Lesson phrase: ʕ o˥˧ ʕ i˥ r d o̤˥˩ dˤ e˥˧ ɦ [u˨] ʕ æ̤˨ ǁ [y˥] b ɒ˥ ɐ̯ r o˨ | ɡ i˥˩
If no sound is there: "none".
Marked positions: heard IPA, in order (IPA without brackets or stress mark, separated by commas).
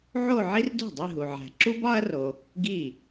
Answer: u˨, u˥